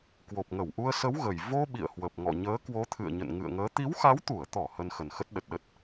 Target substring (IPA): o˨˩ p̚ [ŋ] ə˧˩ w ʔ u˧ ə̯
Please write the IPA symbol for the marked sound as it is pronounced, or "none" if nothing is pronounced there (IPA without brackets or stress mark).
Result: ŋ